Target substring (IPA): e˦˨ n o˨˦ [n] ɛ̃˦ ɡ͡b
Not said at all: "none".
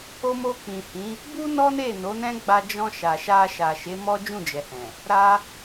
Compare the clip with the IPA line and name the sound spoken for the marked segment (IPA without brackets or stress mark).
n